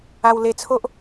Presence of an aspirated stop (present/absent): present